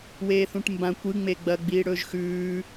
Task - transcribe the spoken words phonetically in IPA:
weːθũʈmbã kʷɨŋ͡me ɡ͡bɐɡ͡biːɽɵːʒ xʉː

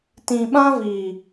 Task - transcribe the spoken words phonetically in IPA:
tĩ˨ ɓã˦viː˨

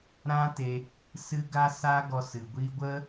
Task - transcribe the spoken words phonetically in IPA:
ɾã˦te˧ | sɨ˧ ɡa˦sa˦ ɡɔ˧sɨ˨ɡʷiː˦ ɡʷə˦

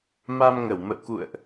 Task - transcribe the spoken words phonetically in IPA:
ma˧mŋə˧˩wmə̰˧˨wkṵ˧˨ə̯ʔ

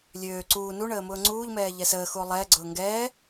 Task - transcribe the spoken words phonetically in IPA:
lʲøː ǀuː nuɳəː mʊːŋ͡ǀuːʎmɛː ʎɛsəːxuo̯ lˠɛːɡ͡ǀʊː ŋɡɛː

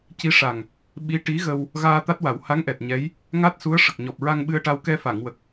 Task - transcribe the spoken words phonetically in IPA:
ci˧˥ʂa˨˩ŋ | ɓi˧˥ ʈi˧˥ ɣə˧w | ɣaː˧t̪a˦˥t̚wa˨˩˦w ha˧˥ŋʔɛ˨˩t̚ ɲɛ˧˥j | ŋa˦˥t̚su˧˥ə̯ ʂə˨˩k̚ ɲɔ˨˩p̚ɹa˧ŋɓɨ˧ə̯ʈa˧w kɛ˧fa˨˩˨ŋwə˨˩k̚

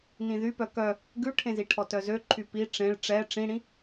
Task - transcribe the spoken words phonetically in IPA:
nĩðypœ kœ | ɡʉʈʰẽziʈʰɔ tœzøǃʰy pi ʈ͡ʂẽɭ ʈ͡ʂɛ ʈ͡ʂĩɽĩ

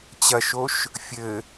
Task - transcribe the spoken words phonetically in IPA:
t͡ɕɐʃoʃ | fʲɘ

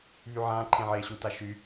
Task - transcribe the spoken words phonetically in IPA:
βyʕãː ǃʰẽʕeːɕu taʃy

